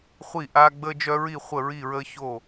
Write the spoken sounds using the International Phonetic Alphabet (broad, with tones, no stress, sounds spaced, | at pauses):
χʷ i˥˧ ʔ aː˥ ɡ͡b əː˥ d͡ʒ œ˥ ɹ i˥˧ χʷ ə˥˧ ɹ i˥˧ ɹ əː˥ ç o˥˧